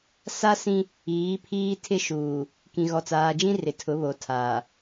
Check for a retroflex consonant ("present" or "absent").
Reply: absent